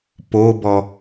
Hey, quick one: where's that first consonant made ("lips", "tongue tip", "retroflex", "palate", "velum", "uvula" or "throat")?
lips